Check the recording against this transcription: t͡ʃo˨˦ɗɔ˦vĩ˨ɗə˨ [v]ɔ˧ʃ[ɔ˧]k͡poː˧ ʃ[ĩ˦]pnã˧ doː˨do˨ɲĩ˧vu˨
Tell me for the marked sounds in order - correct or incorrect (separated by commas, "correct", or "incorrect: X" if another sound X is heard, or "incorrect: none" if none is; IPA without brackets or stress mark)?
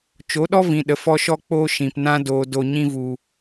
incorrect: f, correct, incorrect: ĩ˨